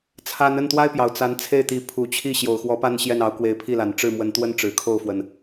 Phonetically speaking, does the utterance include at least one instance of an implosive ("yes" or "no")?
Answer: no